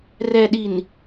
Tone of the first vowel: low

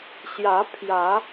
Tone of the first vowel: rising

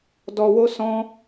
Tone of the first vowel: low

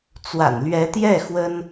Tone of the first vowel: low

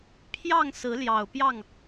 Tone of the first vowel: falling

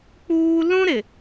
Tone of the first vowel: high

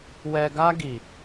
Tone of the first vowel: low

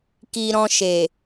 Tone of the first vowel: low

